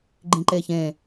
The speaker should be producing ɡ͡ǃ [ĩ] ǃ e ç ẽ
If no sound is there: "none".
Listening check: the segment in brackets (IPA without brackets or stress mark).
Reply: ĩ